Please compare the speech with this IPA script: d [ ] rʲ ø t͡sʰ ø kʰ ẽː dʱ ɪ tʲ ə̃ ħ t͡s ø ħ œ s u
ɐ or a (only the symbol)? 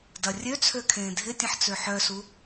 ɐ